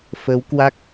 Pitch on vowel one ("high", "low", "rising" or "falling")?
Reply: rising